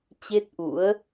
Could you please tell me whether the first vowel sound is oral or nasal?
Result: oral